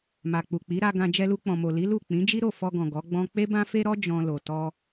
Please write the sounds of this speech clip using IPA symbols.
ma˨k͡pu˨k͡pi˨˦ ɾa˧ɡã˧ d͡ʒɛ˧lu˧k͡pɔ̃˨mo˨ li˨˦lu˦˨ k͡pĩ˨˦d͡ʒi˦ ɾo˦˨fɔ˧ɡɔ̃˨ ɡɔ˨˦ɡ͡bɔ̃˦ k͡pe˦bã˦fe˦ɾɔ˦ d͡ʒɔ̃˧lo˨ tɔ˧

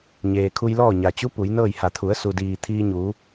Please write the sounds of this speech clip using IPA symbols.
ɲeː˩kʰu˧jlɔː˥˨ɲa˩ t͡ɕu˧˥ pu˩˧jnɤː˥˨jha˧˩ t̪ʰu˩˧ə̯su˩diː˩ t̪ʰiː˧ɲuː˩˧

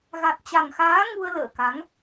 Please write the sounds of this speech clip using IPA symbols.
ɣa˨˩t̚t͡ɕa˨˩ŋxaː˨˦ ŋu˧ə̯ lə̰ː˧˨ka˨˦ŋ

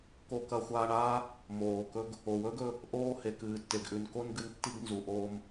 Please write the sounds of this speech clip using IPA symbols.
ko˧kɐ˧xʷaː˧ɳaː˦ | moː˨kɵ˦ɡ | o˨wɵː˦ɡ ɵ˦ | ʔoː˦ he˨kɨː˨tːe˨ɡʔʉ˨n ko˦nɡɨ˧n tːi˦ɡnzu˨ʔoː˦m

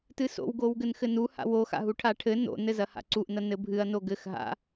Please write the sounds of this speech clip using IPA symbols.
tɨso̰wɡow ɡɘnxɘnuha̰ woxa̰ɦu ʈʰaʈʰɘ no̰nɘ zɐha̰ǀuʔ nɐnɘbʱɨɐ̯ noɡɘx ɦa̰

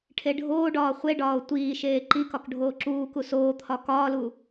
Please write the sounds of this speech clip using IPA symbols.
ʈʰeɖʱoːɖɒː χʷeɖɒːo̯ tʷiːʃeː ǃikɒk ɖʱoːǁuːku soːt̪ʰɒ kɒːlu

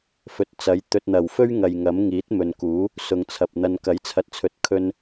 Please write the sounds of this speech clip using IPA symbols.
fɵ˨t̚t͡sɐ˨˥j t̪ɵ˨t̚n̪ɐ˨˩wfɵ˥ɥ ŋɐ˨jŋɐ˨˥m ŋiː˨˥t̚mɵ˨nkuː˨˥ | sʊ˨ŋt͡sʰɐ˨p̚ n̪ɐ˨nkɐ˨˥jt͡sʰɐ˨t̚t͡sʰɵ˨t̚ kʰɵ˧n

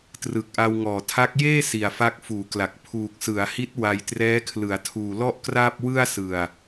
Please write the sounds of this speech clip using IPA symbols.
trɯ˨˩k̚ʔa˧wŋɔː˨˩tʰa˦˥k̚ jeː˥˩ si˨˩a̯fa˦˥k̚fuː˩˦kla˨˩k̚ pʰuː˨˩k̚sɯ˩˦a̯hi˦˥t̚ wa˧jtrɛː˦˥ kʰlɯ˩˦a̯tʰuː˨˩lɔ˥˩ʔkraː˥˩p̚ wɯ˥˩a̯sɯ˨˩a̯

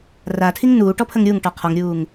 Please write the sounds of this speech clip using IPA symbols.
ratʰiŋ nuːʈɔpʰəŋ ɾʲuŋʈɔ qʰɔŋɾʲuːŋ

